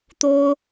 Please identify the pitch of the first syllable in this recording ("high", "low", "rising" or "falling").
high